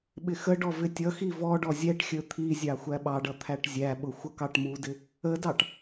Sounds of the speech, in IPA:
ɓ ɪ x ə ɖ ɔ v ɪ tʲ ʌ x i v ɔ ɖ ɔ zʲ ɛ ʈ xʲ ə˞ t̪ʰ i zʲ ɑ xʷ æ ɓ ɑ ɖ ʌ t̪ʰ æ ʈ zʲ æ ɓ ʊ xʷ ʌ k ɑ ʈ m u d ɪ | ə d ɑ ʈ

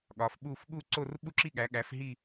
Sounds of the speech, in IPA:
ɠ ɒ˨˦ f ɓ u˥˧ f ɠ u˥˧ ǀ o˥˧ r ɓ u˥˧ ǁ i˥˧ ɠ æ˨˦ ɠ æ˨˦ f ɦ i˥˧

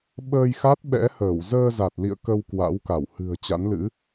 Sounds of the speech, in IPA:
ɓ əː˧ j x a˦˥ t̚ ɓ ɛ̰˧˥ h əː˧˩ w z əː˧ z a˨˩ t̚ l ḭ˧˨ ə̯ k ə˧ w k w a̰˧˥ w k a˧˩ w h ɨ̤˨˩ ə̯ t͡ɕ a̰˧˥ n l ɨ̰˧˥

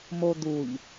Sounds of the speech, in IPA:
m o d̪ u ʎ

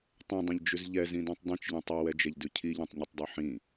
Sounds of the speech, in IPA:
tˤ ɛ̃ dˤ ɐ̃ ʎ d͡ʒ ʉ z ʎ ɛ z ĩ d õ tˤ dˤ ĩ t͡ʃ ʎ ɛ̃ tˤ i w ɛ d͡ʒ ɛ ʎ d ʉ cʰ i ʎ ɛ̃ tˤ ɲ i tˤ dˤ o ħ ĩ

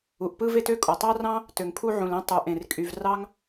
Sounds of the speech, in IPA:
u˩ ʔ p ɯ˥ v e˥ t ø˥ kʼ o˩ tˤ ɑ˥ r ɑ̃˥ | t ø˩ ŋ pʰ u˥ ʕ ũ˩ l ẽ˥ tˤ u˩ ʔ ẽ˩ r kʼ y˩ v r ɑ˥ ŋ

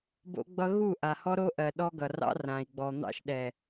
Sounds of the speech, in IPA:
b o̰˦ ɡ͡b ʌ˦ ɣ u˦˨ ʔ a˨ h ɔ˦ ɾ o˦ ʔ ɜ˨ ɗ ɔ˦ ɡ ʌ˨ r ɑ̰˦ r ã˨ i̯ ɡ͡b ɔ˨ n̪ ɑ̰˦ ʃ ɗ ɛ˨

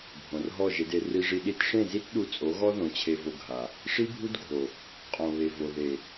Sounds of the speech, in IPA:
bʱ õ˨ r ɦ ɔ˦˨ ʒ e˧ d e˧ r i˧ ʐ i˧ ɗ i˧ t ʂ ẽ˦˨ z i˦ t ɗ u˧ t͡sʼ o˨˦ ɣ ɔ˦ ð õ˨˦ t͡ɕʰ e˧ v o˧ ɡʱ a˨ | ʂ i˦ bʱ u˦ d ɡʱ o˨ | qʼ õ˨ β e˨ v o˨ ð e˨

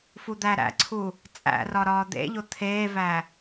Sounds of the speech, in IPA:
f u d̪ æ ɾ æ̰ ǀʰ u | t͡sʼ æ̰ r ɒ ɾ ɒː d̪ ḛ ʎ o t̪ʰ eː v æ

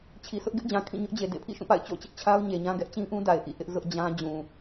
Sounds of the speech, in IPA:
t͡ɕʰ i˨ s ʊ˦ ʔ ɡ ɪ˦ ʔ d͡ʑ ã˨ kʰ ĩ˦˨ ɲ ʊ˦ ʔ d͡ʑ e˨ d ḛ˦˨ pʰ ḭ˦˨ ʃ ũ˦˨ p a̰˦˨ ɪ̯ t͡ɕ o̰˦˨ t͡ɕ ɪ˦ ʔ t͡ɕʰ a˦ ʊ̯ ɲ e˨ ɲ ã˦ ɡ ɛ˦ ʔ t͡ɕ ĩ˦ ʔ ũ˦ d a˨ ɪ̯ ʔ ḭ˦˨ ʔ ɪ˦ ʔ z ʊ˦ ʔ d͡ʑ ã˦ d͡ʑ ũ˨

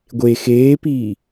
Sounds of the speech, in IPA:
ɡʷ e x eː p iː

